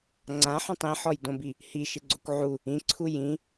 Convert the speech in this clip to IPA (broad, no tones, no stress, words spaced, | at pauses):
ŋ͡ǀãħõtˤ ĩħɔjdõbi | hiʃɪɡ͡ǀokʷ ʕu | ĩǀʰu jĩ